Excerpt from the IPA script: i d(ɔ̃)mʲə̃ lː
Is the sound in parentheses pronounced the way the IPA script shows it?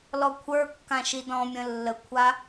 yes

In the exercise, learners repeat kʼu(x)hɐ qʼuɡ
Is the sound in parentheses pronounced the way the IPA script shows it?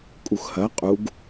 yes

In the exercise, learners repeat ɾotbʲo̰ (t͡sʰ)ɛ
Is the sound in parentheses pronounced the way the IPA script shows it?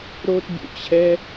no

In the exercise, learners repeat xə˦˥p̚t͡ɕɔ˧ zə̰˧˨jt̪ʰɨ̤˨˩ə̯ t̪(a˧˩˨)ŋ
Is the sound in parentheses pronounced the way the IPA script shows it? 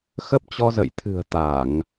yes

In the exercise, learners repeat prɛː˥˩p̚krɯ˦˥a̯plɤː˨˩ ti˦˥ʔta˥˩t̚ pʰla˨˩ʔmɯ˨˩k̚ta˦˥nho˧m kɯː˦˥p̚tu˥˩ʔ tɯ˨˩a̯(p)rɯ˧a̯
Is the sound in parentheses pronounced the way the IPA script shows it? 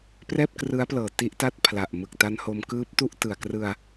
no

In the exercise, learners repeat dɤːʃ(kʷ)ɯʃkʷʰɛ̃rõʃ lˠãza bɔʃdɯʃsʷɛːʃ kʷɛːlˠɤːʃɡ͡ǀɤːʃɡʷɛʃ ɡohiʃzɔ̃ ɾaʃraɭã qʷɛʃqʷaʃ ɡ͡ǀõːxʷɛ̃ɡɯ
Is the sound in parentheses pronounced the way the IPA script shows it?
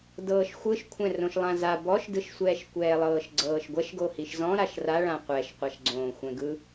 no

